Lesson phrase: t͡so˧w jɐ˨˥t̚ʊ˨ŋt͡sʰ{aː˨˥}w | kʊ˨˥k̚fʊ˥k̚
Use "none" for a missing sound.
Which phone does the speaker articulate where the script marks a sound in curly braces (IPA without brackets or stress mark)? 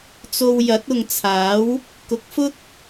aː˨˥